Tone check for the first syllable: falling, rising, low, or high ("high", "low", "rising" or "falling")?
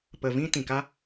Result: low